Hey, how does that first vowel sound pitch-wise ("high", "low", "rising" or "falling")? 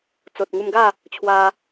low